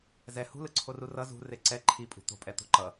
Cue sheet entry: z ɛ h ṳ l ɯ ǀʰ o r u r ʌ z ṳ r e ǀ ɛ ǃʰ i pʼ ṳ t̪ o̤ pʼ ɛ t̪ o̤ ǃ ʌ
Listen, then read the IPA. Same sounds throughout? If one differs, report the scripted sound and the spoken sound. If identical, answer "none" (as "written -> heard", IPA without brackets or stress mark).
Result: none